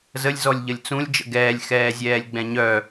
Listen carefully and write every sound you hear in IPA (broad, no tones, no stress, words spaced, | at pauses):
zəlʲ zɔlʲʎəlʲt͡sũlʲ d͡ʒə̰ɡɛːlʲ xɛːzʲɛːlʲɡ͡bɛ̃ɲœ